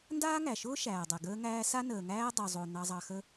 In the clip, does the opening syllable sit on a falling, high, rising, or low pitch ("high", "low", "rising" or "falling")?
high